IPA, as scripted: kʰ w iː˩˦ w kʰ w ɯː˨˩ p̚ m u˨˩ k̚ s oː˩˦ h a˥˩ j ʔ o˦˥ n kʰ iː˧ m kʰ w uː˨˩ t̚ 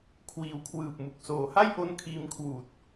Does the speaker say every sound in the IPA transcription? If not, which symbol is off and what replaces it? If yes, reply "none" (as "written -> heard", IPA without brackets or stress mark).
none